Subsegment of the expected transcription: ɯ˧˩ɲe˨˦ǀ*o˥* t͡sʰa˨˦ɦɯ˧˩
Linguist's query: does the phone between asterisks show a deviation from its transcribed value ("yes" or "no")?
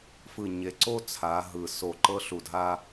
no